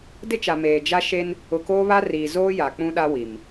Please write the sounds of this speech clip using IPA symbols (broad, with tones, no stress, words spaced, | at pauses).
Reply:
dɪ˦t͡ʃa˨ meː˨d͡ʒa˦ ʃe˦n | ʊ˨koː˦βa˦riː˨ zoː˦ja˨ k͡pũ˦ɗa˦wi˨m